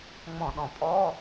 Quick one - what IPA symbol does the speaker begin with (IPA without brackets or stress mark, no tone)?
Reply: ŋ͡m